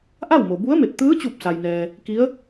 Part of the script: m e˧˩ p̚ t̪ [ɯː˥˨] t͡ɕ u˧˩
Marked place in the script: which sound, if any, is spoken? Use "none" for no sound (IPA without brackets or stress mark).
ɯː˧˥